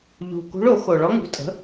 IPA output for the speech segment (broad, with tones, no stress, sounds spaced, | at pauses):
ʎ ṳ˨˩ k ṳ˧˥ ɭ o˨˩˦ x o˨˩ ɭ ɔ˧˥ ŋ ṳ˩˥ tʼ ə̤˩˥